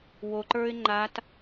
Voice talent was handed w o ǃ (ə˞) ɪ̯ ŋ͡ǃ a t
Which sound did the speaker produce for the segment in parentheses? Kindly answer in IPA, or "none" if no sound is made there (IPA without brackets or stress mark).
ə˞